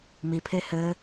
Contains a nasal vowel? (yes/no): no